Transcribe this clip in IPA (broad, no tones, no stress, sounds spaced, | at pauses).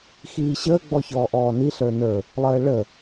x iː ɕ əː ɡ͡b ɔ ç ɔː ʔ ɔː n i ɬ ə˞ n ə˞ | lˠ əː ɭ ə